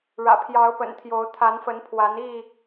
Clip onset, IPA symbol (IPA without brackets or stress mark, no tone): ɻ